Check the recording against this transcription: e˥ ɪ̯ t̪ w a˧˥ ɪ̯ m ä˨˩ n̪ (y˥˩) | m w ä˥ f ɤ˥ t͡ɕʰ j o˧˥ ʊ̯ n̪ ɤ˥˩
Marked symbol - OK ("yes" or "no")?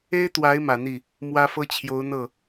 no